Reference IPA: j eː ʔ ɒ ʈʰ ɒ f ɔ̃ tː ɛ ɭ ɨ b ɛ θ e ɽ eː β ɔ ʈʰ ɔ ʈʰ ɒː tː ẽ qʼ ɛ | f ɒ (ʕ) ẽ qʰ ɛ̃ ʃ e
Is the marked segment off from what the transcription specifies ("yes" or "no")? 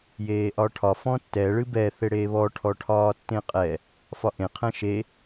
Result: yes